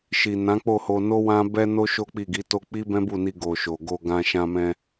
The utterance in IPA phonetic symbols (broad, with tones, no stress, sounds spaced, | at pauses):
ʃ i˨ n ã˨˦ k͡p o˦˨ h o˧ n o˦ w ã˦ b ɛ˦ n o˦ ʃ o˦ k͡p i˦˨ ɡ i˨˦ t o˦ k͡p i˦ b ɛ̃˦ b u˦˨ n i˧ ɡ o˨ ʃ o˨ ɡ o˧ ɡ ã˧ ʃ ã˧ m ɛ̃˧